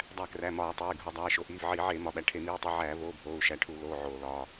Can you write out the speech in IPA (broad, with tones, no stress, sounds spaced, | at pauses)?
dˤ æ˧˩˧ k r æ˩˧˩ m ɒː˧˩˧ tˤ eː˩˧˩ ɡʱ o˧˩˧ dˤ æː˩˧˩ ʃ o˩˧˩ ʔ iː˩˧˩ v ʕ iː˧˩˧ ʕ eː˧˩˧ m ɒ˩˧˩ ɓ æ˩˧˩ ʈʰ e˧˩˧ m iː˩˧˩ tˤ i˩˧˩ ʕ æː˧˩˧ v oː˩˧˩ bʱ oː˩˧˩ u̯ ʃ æ˩˧˩ ʈʰ u˧˩˧ l oː˩˧˩ ʕ oː˧˩˧ l ɒː˩˧˩